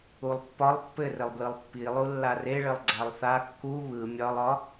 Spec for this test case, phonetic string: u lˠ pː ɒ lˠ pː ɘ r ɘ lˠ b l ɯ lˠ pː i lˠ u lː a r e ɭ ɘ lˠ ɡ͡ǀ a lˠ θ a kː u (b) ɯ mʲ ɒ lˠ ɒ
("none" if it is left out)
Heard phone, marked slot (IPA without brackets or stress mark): β